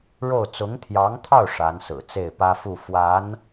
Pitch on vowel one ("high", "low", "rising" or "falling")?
falling